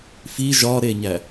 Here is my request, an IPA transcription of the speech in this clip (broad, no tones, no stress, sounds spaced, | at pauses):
f i ʒ ɒ ɾ e ɲ æ